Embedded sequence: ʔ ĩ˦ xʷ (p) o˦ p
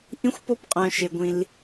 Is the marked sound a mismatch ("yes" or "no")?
no